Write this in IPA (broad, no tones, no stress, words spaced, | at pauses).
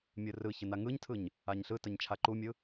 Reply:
mʲɯrɯçə naŋɯɲtʰɯɲ | aɲɬɯtəɲ t͡ʃʰaǃumʲɯ